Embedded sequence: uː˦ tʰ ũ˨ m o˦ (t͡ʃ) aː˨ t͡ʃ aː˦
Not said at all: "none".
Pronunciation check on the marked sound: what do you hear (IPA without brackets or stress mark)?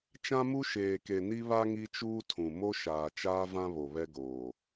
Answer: ʃ